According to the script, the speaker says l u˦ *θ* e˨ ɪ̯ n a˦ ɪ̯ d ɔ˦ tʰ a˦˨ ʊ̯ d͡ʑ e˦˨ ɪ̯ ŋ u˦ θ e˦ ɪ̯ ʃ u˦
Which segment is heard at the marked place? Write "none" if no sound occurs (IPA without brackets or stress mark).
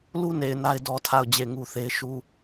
n